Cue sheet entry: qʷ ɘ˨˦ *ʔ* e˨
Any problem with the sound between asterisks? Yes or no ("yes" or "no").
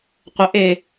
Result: no